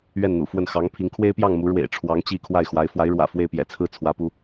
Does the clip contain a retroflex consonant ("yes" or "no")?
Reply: yes